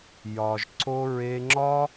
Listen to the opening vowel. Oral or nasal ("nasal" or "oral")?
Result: oral